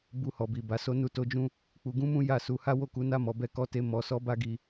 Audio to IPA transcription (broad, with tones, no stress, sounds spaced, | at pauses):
b u˧ h ɔ˨ b i˨ b a˨ s o˧ n u˧ t o˧ d͡ʒ ũ˧ | k͡p u˧ ɡ ũ˦ m ũ˦ j a˦˨ s u˧ h a˦ w o˦˨ k u˨˦ n a˦ m ɔ˧ b ɛ˦ k ɔ˦ t e˦ m ɔ˧ s ɔ˦ b a˦ ɡ i˧